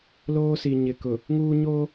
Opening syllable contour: high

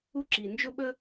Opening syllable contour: high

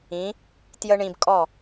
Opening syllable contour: rising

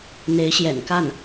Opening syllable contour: rising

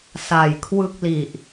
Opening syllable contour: low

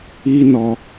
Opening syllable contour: high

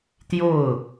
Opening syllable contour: falling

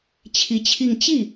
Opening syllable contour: rising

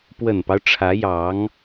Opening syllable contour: low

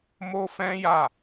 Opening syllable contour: high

